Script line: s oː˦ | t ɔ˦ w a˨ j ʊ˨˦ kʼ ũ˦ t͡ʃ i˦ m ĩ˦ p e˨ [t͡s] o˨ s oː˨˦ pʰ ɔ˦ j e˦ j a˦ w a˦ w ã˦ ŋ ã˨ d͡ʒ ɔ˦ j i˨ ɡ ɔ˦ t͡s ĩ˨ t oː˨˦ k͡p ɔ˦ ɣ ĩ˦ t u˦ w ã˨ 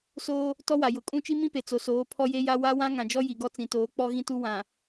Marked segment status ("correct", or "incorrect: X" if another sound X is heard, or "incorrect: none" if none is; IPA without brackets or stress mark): correct